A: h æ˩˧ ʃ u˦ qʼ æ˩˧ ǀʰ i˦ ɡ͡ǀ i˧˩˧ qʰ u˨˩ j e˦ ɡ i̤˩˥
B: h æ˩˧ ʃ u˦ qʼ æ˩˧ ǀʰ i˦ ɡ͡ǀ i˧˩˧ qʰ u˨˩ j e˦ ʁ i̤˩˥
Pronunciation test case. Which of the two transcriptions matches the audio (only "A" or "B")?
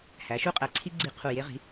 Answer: B